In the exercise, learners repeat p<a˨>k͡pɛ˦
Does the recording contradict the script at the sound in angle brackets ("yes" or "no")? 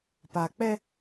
no